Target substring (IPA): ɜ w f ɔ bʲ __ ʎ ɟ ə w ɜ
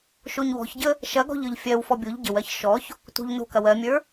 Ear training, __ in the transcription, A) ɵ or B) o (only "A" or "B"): B